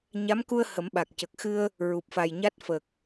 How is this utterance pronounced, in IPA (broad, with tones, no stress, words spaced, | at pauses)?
ɲa˧˥mku˧ə̯ hə˨˩˦mɓa˨˩k̚ cə˨˩k̚xɨ˧ə̯ | ɹu˨˩p̚fa˨˩jɲa˦˥t̚ fə˨˩k̚